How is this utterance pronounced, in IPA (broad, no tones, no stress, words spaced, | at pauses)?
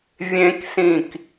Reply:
vʲẽksĩk